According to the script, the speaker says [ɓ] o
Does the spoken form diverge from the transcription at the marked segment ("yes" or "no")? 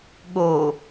yes